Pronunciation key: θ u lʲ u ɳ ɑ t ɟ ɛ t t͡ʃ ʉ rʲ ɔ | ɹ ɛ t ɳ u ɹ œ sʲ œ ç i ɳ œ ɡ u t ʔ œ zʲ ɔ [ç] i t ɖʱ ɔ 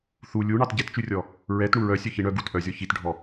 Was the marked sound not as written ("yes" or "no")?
no